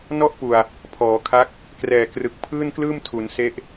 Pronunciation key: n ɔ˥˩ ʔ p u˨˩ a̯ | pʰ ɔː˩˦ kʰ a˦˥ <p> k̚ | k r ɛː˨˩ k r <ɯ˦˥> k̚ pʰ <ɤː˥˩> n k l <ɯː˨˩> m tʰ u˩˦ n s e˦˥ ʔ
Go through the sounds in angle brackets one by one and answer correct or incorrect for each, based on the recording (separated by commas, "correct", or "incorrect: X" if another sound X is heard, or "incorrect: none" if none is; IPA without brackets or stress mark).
incorrect: none, incorrect: ɯ˨˩, incorrect: ɯː˥˩, incorrect: ɯː˥˩